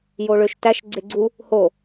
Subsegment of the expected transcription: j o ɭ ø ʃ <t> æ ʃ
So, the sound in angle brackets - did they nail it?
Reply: yes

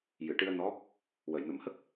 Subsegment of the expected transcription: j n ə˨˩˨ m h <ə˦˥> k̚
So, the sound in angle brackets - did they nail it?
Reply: yes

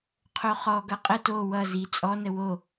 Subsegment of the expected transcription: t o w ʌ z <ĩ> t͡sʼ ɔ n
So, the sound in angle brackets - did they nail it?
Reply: no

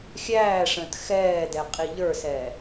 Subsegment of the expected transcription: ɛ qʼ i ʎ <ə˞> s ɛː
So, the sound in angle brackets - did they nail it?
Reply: yes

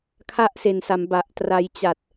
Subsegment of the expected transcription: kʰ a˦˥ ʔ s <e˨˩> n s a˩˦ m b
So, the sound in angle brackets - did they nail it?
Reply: yes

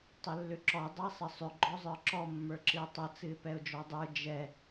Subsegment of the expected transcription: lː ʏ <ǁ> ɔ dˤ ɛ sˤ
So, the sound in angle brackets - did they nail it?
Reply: yes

